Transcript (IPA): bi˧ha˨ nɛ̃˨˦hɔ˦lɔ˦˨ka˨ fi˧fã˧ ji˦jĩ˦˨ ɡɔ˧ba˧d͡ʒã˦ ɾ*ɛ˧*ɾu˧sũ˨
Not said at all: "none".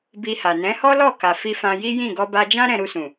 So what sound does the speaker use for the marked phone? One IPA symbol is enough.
ɛ̃˧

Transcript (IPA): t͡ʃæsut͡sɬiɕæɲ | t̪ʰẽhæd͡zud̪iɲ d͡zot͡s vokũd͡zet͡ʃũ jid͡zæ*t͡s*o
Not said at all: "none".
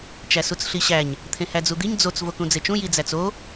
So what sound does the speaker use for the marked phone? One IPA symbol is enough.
t͡s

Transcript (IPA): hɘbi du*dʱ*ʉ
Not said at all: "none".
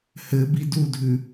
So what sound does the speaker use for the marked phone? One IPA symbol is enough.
dʱ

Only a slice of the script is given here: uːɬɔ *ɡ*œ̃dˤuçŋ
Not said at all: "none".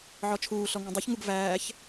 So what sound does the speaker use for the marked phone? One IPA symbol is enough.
ŋ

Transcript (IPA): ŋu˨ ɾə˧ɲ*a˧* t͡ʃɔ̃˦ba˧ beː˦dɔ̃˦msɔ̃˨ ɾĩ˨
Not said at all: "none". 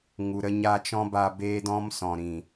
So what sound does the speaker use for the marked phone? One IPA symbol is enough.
a˧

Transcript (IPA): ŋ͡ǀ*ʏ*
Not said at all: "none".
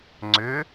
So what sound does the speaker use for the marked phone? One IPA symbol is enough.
ʏ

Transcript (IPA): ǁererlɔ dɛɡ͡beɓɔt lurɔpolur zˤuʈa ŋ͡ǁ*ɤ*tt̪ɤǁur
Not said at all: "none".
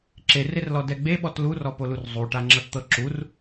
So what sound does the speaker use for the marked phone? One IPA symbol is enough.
ɤ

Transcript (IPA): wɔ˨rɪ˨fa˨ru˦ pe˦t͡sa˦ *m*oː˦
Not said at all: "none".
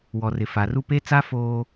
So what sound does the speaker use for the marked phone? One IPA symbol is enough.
f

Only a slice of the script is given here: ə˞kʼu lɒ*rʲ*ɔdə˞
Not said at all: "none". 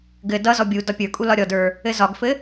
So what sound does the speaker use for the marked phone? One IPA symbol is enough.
ɾʲ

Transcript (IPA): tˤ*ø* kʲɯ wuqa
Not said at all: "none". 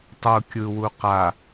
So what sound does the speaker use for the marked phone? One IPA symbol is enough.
u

